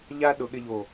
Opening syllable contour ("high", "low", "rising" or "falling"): high